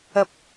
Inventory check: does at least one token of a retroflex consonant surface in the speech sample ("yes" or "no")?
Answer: no